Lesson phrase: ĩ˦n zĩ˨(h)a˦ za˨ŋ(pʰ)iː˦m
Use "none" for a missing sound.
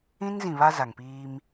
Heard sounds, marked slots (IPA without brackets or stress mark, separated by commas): β, p